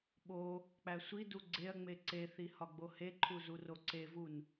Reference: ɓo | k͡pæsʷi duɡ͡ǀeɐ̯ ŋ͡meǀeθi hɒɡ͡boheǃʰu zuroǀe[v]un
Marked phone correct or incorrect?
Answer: correct